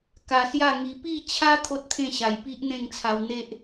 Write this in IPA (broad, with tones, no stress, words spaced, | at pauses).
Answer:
ka˧sja˥˧ŋi˧ pi˥˧t͡ɕʰa˦ t̪ʰo˦t̚t̪ʰẽ˥˧ɕa˨˩jpi˦ʔ n̪ẽ˥˧ŋt͡sʰa˧w n̪e˦ʔ